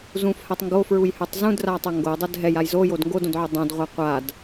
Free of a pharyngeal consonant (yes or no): no